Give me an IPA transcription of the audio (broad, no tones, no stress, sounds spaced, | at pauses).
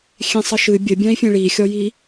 xʲ ẽ sˤ ə ʃ ɨ bʲ ə bʲ ã i̯ fʲ ẽ ɭ i xʲ ɔ j i